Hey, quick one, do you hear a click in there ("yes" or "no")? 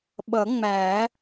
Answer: no